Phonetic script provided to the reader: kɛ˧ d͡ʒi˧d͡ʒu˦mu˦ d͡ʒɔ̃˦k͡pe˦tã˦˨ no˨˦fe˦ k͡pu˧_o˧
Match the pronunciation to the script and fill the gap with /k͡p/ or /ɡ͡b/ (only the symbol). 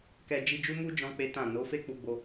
ɡ͡b